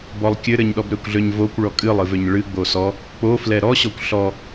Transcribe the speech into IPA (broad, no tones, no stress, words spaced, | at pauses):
bɔlˠkʲɘɾɘɲɗɔb ɾøkʷɮøɲvokʷ ɭɔkʼɨlˠ ɨvøɲɭɨ ɡ͡bosɔ | k͡po flɛɾɔɕɔkʷ ɬɔ